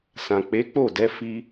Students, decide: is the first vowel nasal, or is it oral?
nasal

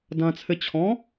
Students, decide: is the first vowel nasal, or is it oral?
nasal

